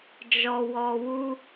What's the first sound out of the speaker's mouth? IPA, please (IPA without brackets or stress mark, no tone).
d͡ʒ